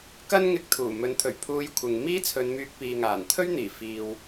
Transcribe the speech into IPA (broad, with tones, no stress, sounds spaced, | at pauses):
k ɐ˥ n ŋ ɪ˧ k̚ t̪ʰ uː˨˩ m ɵ˨˥ n t̪ʰ ɵ˨˩ ɥ pʰ uː˧ j kʷʰ ɪ˨ ŋ m iː˥ t͡sʰ ɵ˨˧ n m yː˧ k̚ p iː˨ ŋ aː˨˩ n t̪ʰ ɵ˥ ɥ n̪ iː˨˩ f iː˨ w